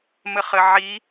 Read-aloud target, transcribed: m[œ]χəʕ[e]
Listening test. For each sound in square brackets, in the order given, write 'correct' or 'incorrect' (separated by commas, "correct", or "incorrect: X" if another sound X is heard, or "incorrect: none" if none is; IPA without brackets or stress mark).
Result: incorrect: ə, incorrect: i